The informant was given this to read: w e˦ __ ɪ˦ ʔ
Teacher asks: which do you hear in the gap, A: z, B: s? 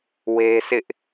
B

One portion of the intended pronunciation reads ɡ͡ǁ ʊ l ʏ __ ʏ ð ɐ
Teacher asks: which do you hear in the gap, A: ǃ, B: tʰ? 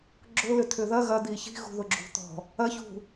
B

